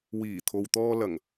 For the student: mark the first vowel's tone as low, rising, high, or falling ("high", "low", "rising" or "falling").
low